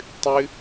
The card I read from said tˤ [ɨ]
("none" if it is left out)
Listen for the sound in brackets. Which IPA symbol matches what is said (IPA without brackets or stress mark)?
ɨ